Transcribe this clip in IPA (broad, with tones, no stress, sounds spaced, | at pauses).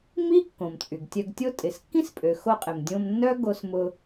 m i˥ kː õ˩ m t͡sʼ y˩ ɡ tʲ œ˧ ɡ tʲ o˥ tʼ ɪ˩ s kː ĩ˥ s pʼ ø˩ x o˧ qʼ ɪ˩ m dʲ õ˧ m nː œ˥ ɡ o˧ s m ʊ˧